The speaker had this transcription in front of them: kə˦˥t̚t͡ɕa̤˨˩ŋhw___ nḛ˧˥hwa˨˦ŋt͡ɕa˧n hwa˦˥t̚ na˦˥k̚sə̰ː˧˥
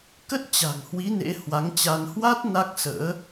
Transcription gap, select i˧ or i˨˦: i˨˦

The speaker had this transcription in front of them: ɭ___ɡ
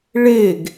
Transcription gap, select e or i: e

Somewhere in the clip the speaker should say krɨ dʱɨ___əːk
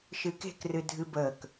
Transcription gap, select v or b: b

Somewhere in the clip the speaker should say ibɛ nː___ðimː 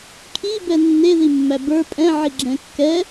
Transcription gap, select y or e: e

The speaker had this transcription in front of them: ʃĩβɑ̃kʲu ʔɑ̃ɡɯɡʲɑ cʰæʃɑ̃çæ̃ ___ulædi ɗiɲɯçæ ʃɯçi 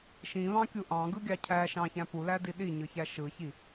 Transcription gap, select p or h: p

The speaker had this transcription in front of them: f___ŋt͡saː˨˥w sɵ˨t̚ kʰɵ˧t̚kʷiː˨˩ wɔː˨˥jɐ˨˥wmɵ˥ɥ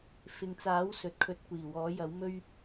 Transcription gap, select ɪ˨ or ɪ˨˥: ɪ˨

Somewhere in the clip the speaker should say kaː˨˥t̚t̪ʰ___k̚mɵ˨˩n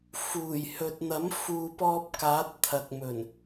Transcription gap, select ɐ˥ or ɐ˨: ɐ˨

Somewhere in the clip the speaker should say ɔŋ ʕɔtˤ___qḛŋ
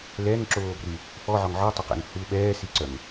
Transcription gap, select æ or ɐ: ɐ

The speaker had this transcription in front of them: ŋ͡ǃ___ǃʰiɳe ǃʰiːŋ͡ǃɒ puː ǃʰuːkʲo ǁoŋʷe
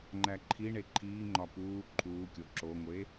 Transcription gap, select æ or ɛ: æ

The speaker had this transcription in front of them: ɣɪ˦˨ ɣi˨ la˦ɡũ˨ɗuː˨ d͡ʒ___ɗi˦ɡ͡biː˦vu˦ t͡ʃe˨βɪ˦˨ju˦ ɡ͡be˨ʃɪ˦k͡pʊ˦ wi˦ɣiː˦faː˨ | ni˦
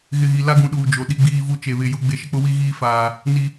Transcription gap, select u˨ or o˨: o˨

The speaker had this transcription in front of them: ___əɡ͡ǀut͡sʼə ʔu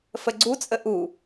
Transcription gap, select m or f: f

